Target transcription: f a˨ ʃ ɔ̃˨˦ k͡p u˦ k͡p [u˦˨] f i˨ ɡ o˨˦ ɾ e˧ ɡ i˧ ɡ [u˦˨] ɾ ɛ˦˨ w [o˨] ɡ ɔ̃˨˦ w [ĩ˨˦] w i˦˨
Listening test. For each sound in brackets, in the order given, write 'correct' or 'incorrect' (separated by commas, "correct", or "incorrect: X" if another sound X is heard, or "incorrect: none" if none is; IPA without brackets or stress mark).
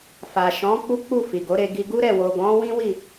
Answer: correct, incorrect: u˦, correct, incorrect: ĩ˦